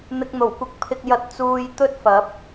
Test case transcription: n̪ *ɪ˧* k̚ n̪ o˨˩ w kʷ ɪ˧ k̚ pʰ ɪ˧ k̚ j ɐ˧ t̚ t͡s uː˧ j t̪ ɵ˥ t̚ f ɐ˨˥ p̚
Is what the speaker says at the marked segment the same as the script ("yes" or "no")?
yes